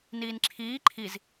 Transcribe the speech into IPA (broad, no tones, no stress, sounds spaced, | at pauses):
n iː n ǁʰ iː ǃʰ i z